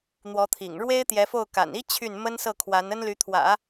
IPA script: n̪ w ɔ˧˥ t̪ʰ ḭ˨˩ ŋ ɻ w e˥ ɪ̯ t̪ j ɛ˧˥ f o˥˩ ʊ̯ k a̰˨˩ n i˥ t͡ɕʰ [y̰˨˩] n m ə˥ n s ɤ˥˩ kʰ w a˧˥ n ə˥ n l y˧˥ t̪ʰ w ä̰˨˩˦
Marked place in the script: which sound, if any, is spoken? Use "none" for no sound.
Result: y˥˩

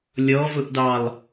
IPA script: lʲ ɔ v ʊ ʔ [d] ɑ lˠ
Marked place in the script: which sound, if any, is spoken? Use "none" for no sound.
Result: d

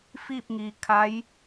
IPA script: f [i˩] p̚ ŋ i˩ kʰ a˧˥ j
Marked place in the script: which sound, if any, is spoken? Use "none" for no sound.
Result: i˥˨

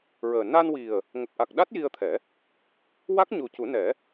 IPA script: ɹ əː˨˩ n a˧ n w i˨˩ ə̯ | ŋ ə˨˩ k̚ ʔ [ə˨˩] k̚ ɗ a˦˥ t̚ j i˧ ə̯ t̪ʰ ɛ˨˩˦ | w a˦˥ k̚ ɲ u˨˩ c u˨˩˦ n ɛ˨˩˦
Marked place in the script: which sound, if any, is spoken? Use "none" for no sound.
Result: a˨˩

